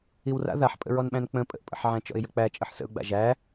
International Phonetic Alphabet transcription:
iwra̰ ðaħpʼə̰ɹɔnɓæ̃n k͡pə̃ pʼə̰ʔpʼə̰ħʕæ̃t͡ʃɔ̰ɪ̯ jək͡pæt͡ʃʼəħ sə̰ʊ̯ɡ͡ba̰ ʒæ

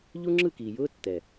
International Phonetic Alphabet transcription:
ʎu˦ŋ͡ǁɯ˦˨kiː˨jʊː˦ tːɛ˨

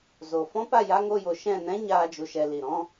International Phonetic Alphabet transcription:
zo˨fɔ̃˦pa˦˨ ja˦ ŋo˧jo˨ ʃɛ̃˦˨nɛ̃˦ ɲaː˦d͡ʒu˧ʃɛ˧ li˨ ɾɔ̃˦

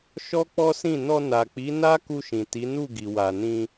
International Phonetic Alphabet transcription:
ʃɔ˦k͡pɔ˦sĩ˦˨ nɔ˧na˨k͡pi˨˦ na˦ku˧ʃĩ˨ ti˨˦nu˦˨ɡi˨ wa˨nĩ˧

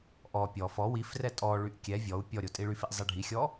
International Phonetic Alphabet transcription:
ʔɔ pʲɔ fɔ wifrɛ tʼɔɭyʔ kʲɛ vʲɔu̯ pʲɔɾʲo tʼiɭyfiʔ zˤiɖʱixʲɔ

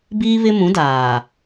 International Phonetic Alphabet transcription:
biː˦βɪ˦mũ˨˦ daː˨

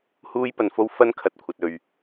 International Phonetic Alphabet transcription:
huː˥jpɐ˧nfo˥w fɐ˥n kʰɐ˧t̚kʷʰɐ˧t̚ɵ˧ɥ

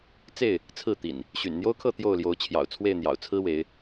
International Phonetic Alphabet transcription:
t͡se˥˨ɪ̯ | t͡sʰɹ̩˥˨t̪ḭ˨˩n | ɕy̰˨˩nn̪jo˦ʊ̯kʰɤ˥˨ t̪jo˥˨ʊ̯ljo˨˦ʊ̯t͡ɕʰjɑ̰˨˩ʊ̯ t͡sʰwe˥˨ɪ̯n̪jɑ̰˨˩ʊ̯ t͡sʰɹ̩˦we˨˦ɪ̯

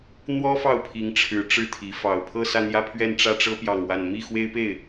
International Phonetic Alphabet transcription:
n̪wɔ˥fɑ˥˩ʊ̯pʰi˧˥ŋʈ͡ʂʰɻ̩˧˥ ʈ͡ʂɻ̩˥t̪ʰi˧˥ fɑ˨˩ʊ̯ pʰɤ˥˧sä˥˧n̪jä˥˧pʰɥɛ˥˧n ʈ͡ʂä˥˩ʈ͡ʂɤ˥ pjɑ˥˧ŋwa˥˧n mi˥˩ xwe˥ɪ̯pe˥˩ɪ̯

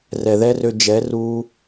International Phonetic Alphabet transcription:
rɛ˨ðɛ˦rø˧ d͡ʒɛ˨˦ruː˧

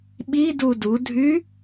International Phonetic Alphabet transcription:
ɓidu dudʱy

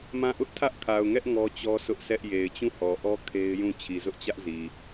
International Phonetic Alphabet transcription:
mã˦˨ ʔʊ˦ʔtʰä˦ʔkʰa˨ʊ̯ŋɛ˦ʔ ŋɔ˦t͡ɕɔ˦sʰʊ˦ʔsɛ˦ʔ je˨ɪ̯t͡ɕũ˦˨hɔ˨ʔɔ˦ kʰe˦ɪ̯jũ˦˨ t͡ɕʰi˨zʊ˦ʔt͡ɕä˦ʔzi˨

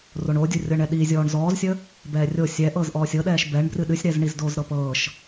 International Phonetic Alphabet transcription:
roɳodʲu rʲɤɳɛɗizʲɔːɳ zɔːzsʲə | bɛːrʲo sʲɛ ʔɤːzʔɔːsʲɤɗɛːʃ bɛɳ brɨɗɨsʲɾɛzɳiz doːzɾɤpɤːʃ

